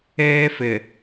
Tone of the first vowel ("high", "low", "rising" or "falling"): high